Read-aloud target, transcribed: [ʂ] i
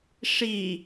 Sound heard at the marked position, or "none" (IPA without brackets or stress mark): ʂ